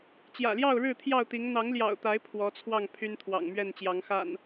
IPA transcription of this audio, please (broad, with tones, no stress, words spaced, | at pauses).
t͡ɕjä̰˨˩ljɑ˥˨ʊ̯ɻɻ̩˥˨ t̪ʰjɑ˥˨ʊ̯t̪i˨˦ŋ n̪ɑ˨˦ŋljɑ̰˨˩ʊ̯t̪a˨˦ɪ̯ pʰwɔ˨˦t͡sʰwɑ˥˨ŋ pʰy˦nt̪ʰwɑ̰˨˩ŋmɥɛ˥˨n t͡ɕjɑ˨˦ŋxa̰˨˩n